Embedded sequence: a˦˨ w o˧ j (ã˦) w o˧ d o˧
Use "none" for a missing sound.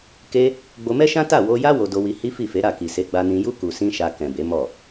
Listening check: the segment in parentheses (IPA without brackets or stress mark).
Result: a˦